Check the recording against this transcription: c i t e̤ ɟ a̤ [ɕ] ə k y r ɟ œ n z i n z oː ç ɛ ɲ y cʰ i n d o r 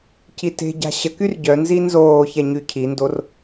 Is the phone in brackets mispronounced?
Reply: no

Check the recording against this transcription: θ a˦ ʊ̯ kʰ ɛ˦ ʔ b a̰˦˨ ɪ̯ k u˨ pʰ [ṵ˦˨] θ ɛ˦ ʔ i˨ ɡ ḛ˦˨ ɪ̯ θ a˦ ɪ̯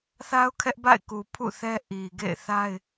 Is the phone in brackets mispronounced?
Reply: no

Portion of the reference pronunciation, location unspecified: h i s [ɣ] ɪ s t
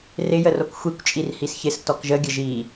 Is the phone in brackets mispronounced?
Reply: yes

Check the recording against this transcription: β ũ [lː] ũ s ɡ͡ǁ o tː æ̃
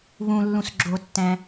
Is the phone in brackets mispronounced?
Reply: no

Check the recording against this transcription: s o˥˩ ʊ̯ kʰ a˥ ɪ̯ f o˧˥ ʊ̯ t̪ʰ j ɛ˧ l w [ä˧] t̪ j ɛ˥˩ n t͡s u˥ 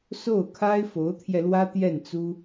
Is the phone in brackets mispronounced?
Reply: yes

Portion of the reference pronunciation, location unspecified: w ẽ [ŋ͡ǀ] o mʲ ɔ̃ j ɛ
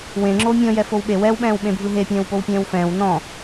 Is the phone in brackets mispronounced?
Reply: yes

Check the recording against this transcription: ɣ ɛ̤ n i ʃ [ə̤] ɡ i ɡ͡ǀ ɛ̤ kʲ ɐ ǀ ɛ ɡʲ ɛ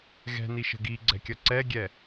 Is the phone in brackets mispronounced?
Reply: no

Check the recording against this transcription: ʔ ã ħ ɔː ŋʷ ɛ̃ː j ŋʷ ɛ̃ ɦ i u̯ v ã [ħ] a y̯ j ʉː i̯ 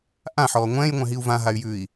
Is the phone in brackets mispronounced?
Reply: yes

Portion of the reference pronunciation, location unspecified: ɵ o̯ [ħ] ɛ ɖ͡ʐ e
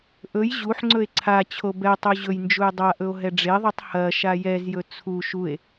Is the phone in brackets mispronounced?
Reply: yes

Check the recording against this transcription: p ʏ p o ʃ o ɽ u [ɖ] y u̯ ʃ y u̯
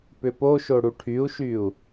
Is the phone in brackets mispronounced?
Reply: yes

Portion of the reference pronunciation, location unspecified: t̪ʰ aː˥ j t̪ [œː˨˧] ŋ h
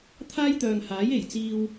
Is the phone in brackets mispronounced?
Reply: yes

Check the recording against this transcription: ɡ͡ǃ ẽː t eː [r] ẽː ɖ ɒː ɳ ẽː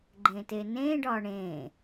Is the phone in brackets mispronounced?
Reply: yes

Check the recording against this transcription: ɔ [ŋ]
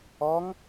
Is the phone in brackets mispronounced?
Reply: no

